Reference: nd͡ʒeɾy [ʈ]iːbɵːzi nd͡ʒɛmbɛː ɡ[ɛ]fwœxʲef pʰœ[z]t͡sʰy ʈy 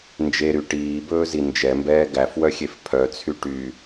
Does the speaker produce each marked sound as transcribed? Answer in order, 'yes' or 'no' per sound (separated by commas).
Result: yes, no, no